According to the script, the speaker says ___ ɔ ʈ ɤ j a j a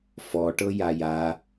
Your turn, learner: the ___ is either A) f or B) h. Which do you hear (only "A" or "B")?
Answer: A